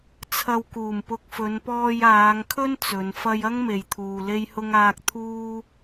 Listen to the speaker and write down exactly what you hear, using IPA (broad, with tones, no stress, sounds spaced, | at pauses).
t͡sʰ ɐ˨ w k uː˨˩ m p ʊ˨ k̚ f ɵ˨˧ n p ɔː˧ j aː˨˧ ŋ kʰ ɵ˥ n t͡s ɵ˨˧ n f ɐ˥ j ɐ˥ ŋ m e˨ j t̪ʰ uː˨ l e˥ j h ʊ˥ ŋ aː˥ k̚ t̪ʰ uː˥